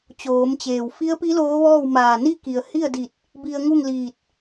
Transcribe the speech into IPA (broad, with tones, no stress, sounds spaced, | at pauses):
t͡ɕ oː˩˧ m t͡ɕ eː˩ w f i˧˥ ə̯ p i˧˥ l oː˧˥ ʋ ɔː˥˨ w m aː˧˩ n i˥˨ k i˩ ə̯ h i˥˨ ə̯ d i˧˩ t̚ | b i˧ ə̯ ŋ u˥˨ ŋ l iː˧˩ t̚